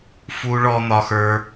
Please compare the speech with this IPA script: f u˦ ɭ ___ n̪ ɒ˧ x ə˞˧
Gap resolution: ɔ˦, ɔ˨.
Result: ɔ˦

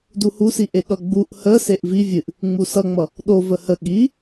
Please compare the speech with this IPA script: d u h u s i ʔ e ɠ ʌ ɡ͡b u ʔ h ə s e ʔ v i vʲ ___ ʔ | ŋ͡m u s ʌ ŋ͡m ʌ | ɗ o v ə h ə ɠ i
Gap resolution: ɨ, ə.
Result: ɨ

